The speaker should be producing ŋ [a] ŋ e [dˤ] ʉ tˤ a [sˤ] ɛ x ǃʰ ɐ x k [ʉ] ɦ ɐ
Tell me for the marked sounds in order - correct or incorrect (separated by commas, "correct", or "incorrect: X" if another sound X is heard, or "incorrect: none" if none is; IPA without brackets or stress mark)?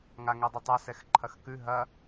correct, correct, incorrect: s, correct